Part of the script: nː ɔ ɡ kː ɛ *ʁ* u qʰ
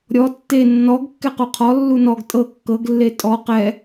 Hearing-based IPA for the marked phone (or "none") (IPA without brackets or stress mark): q